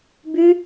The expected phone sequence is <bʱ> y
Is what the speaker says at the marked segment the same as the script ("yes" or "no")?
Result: no